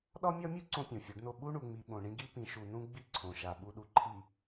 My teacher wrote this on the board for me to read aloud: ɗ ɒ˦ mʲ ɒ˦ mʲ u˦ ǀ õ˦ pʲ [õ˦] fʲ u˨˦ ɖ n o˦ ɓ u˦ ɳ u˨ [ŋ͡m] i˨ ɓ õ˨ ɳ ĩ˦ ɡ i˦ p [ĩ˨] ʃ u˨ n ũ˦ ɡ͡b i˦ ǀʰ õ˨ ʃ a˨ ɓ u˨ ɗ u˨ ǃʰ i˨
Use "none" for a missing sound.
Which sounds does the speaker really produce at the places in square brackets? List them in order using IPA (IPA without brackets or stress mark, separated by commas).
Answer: õ˨, ŋ͡m, ĩ˨